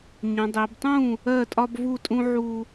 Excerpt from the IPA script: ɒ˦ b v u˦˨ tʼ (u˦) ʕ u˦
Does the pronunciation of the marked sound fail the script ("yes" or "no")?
yes